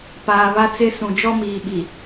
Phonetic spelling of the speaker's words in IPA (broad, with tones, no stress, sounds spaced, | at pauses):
p aː˨ β a˦ t͡s ɪ˦ s ũ˨ d͡ʒ ɔ˦ m iː˨ ɓ i˨